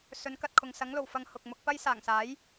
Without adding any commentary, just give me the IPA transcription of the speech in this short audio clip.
s ɵ˨˥ n k ɐ˧ t̚ kʰ ʊ˨ ŋ s ɐ˨˥ ŋ l o˨˩ w f ɐ˧ ŋ h ʊ˨ k̚ m ʊ˧ k̚ p ɐ˥ j s aː˨˩ ŋ s aː˨˥ j

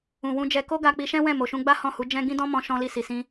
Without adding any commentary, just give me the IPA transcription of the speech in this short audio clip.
ũ˨ w ũ˧ d͡ʒ ɛ˧ k o˦ ɡ a˧ k͡p i˧ ʃ ɛ̃˦ w ɛ̃˦˨ m o˨ ʃ ũ˧ ɡ͡b a˦ h ɔ̃˦˨ h u˨˦ d͡ʒ ɛ̃˦ ɡ ĩ˦ d ɔ̃˦ m ɔ̃˧ ʃ ɔ̃˧ l i˧ s i˨ s ĩ˧

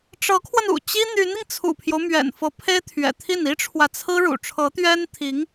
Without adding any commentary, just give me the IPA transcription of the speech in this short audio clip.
ʈ͡ʂ ɤ˧˥ kʰ w ə˧ n ṵ˨˩ t͡ɕ i˥ n̪ y˧˥ n i˧ ŋ t͡sʰ ṵ˨˩ pʰ j o˦ ʊ̯ m ɥ ɛ̰˨˩ n f ɤ˧˥ pʰ e˥ ɪ̯ t̪ʰ ɥ ɛ̰˨˩ t̪ʰ i˥˩ n i˥ ʈ͡ʂʰ w ä˨ t͡sʰ ɹ̩˥ ɻ ṵ˨˩ ʈ͡ʂʰ ɤ˧˥ t̪ ɥ ɛ˥ n t̪ʰ i˧˥ ŋ

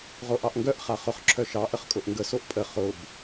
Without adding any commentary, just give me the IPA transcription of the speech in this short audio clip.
ʁ o ʔ ɑ ʔ ŋ ɡ œ ʔ χ a χ ʊ χ ǁʰ œ ʃ ɑ ʔ ə χ kʼ ʊ ʔ ŋ ɡ ə s o ʔ pʼ ə χ ʊ b

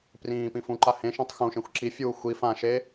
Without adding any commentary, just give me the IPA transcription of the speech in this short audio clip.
p r ĩː p ĩ f ũ ǃ a h ẽ ʃ ã tˤ x ũ ʃ ẽ xʷ ǁ i fʲ uː xʷ i f ã ʃ e

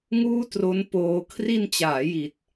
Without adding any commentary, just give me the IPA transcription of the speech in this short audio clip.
ŋ uː˥˩ t r o˦˥ n p oː˧ kʰ r i˧ n t͡ɕ aː˩˦ j i˨˩ t̚

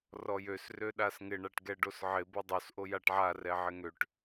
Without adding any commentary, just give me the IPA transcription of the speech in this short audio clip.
r ɔ j ø s r ø ɗ a s ŋ ɪ ɳ a ʈ ɡ ɛ ɖ o s ʕ ɪ b o dˤ o s ʔ o j a ʈ ʕ a r ɛ ʕ ɪ ŋ ø ʈ

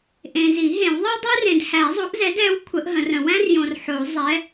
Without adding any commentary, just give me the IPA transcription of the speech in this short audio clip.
ʔ ẽ˨ z i˨˩˦ ɦ ẽ˨˩˦ w ðˤ ɛ˥ dˤ ɛ˥ r ẽ˨ d h æ˨˩˦ zˤ o˨˥ ʔ z ɛ˨˥ d ɛ˨˥ w kʷʰ ə˨˥ ʔ ɦ ə̃˨˩˦ r ə̃˨ w æ̃˥ r j õ˨ r ħ o˨˩˦ zˤ ɛ˨˥

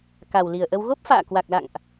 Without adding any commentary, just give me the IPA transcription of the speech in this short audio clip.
k a˨˩ w l i˨˩ ə̯ ʔ ə˧ w ɣ o˦˥ p̚ f a̰ː˧˨ k w a˨˩ k̚ l a̰˧˨ ŋ ʔ

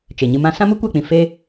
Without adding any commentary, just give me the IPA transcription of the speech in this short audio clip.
t͡ʃ e˨ ɲ ɨ˧ m ã˦ s ã˦ m u˦ kʷ ɛ˦˨ k͡p ĩ˨ f e˦

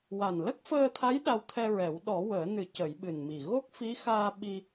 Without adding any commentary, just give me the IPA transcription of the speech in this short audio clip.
w a˨˩ n l ə˦˥ k̚ f əː˧ t̪ʰ a˧˥ j ɗ a˧ w t̪ʰ ɛ˧ ɹ ɛ˨˩˦ w ɗ ɔ˨˩˦ w əː˨˩˦ n ɨ˨˩˦ c ə˨˩˦ j ɓ ɨ˨˩ n m i˨˩ ɣ o˦˥ k̚ f i˧˥ x aː˧ ɓ i˧

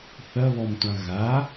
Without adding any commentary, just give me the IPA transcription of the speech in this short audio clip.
θ ɐ β ɔ m tʷ ã ɣ a

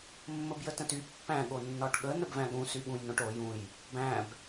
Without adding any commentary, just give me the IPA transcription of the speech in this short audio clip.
mː ə b j ə t ə̃ t y pː æ̃ ɠ o nː ɒ ʈ ɠ ə n ə b v æ̃ ɠ ũ s y ɠ ũ j n õ ʈ o j ũ j | b æ̃ b

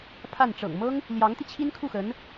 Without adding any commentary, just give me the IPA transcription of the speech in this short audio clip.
pʰ a˥˩ n ʈ͡ʂ ɤ̰˨˩ ŋ m ɤ˥ ŋ | l j ɑ˧˥ ŋ t̪ i˧ t͡ɕʰ i˥ n kʰ u˥˩ x ə˧˥ n

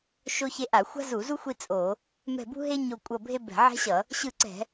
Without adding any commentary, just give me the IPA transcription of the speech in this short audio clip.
ʃ o˥ ç e˥ ʔ a˧˩˧ xʷ a̤˥ z u˧˩˧ z u˥ xʷ i˥ t͡sʼ o˧˩˧ | m ɛ̤˦˨ b ṳ˥ ɦ e˥ ɲ o˦˨ kʷʼ ʌ˦˨ bʱ e˥ b ɛ̤˧˩˧ ʕ ɛ̤˥ ɕ ʌ˧˩˧ | ɕ ɯ˦˨ ǀ ɛ̤˧˩˧

